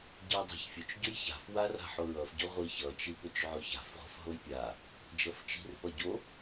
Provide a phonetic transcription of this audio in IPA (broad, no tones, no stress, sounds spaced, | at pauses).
ɟ i dˤ a̤ ç fʲ ʊ t͡ʃ ɟ ʊ j ç a̤ f w a r a̤ ħ o ɹ ʌ f ɟ ʊ ʁʷ i ç ʌ t͡ʃ i p ʊ t͡ʃ ʕ ʊ ç a̤ f ʁʷ a̤ f ɦ o j pʲ a | d͡ʒ ʌ f t͡ʃ i̤ r p ʌ ɟ o